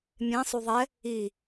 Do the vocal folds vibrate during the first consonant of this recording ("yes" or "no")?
yes